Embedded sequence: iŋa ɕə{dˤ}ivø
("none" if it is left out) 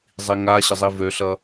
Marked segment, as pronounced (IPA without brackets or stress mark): zˤ